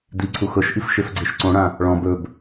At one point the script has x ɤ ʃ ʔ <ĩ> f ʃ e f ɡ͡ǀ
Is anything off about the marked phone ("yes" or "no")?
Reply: yes